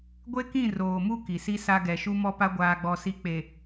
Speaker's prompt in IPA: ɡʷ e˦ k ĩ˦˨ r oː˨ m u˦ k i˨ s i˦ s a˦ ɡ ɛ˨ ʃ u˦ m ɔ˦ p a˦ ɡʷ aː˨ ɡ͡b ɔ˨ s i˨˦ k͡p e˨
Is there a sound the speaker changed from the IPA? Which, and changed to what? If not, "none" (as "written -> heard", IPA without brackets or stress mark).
none